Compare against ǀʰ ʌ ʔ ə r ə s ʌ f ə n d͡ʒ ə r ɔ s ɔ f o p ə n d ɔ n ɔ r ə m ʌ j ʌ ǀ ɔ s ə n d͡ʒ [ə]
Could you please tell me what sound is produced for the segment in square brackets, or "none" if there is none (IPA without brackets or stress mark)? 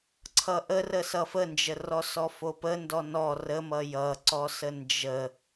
ə